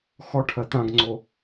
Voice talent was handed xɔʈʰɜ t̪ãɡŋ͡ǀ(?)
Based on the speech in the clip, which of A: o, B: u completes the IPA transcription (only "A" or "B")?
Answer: A